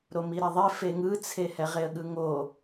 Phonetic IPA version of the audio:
ɾ o m i ɾ ɛ ðˤ e f e ŋ ɯ t͡sʰ e h ɛ ʁ e ə̯ ɠ ɯ ŋ o

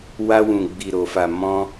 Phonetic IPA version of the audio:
w a˧ w ũ˨ ɡ͡b i˨ ɾ o˨ f a˨ m ɔ̃˧

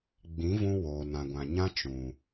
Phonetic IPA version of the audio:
ɡ͡b ĩ˨˦ v ũ˧ w oː˨ n ã˨ ɡʷ ã˨ ɲ ã˦ t͡ʃ ũ˨

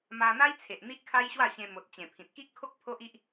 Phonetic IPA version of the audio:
m a˧ n̪ a˦ j t͡sʰ e˨ ʔ n̪ i˦ ʔ kʰ a˦ j ɕ w a˥˧ ɕ ẽ˧ m o˨ t̚ t͡ɕ ẽ˨˩ pʰ ĩ˨ t̚ k i˦ ʔ kʰ o˦ k̚ pʰ o˦ ʔ i˦ ʔ

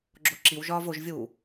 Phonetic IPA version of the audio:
ɡ͡ǁ o ǁ i w ʒ ɒː v o ʒ vʲ uː

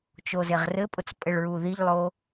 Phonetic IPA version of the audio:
t͡ʃ o z e ʁ r ɘ pʼ ʊ t͡s pʼ ɘ ɭ ɹ u ð i ʎ lˠ o

